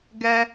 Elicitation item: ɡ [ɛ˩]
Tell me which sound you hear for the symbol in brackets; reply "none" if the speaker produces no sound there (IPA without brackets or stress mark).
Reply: ɛ˥